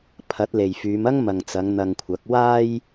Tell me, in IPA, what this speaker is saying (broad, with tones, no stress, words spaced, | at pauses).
pʰɐ˨˥t̚le˨jfyː˨˧m ɐ˥ŋmɐ˨ŋt͡sɐ˨˧ŋ n̪ɐ˧ŋkʷʰɐ˨˥k̚ waː˥j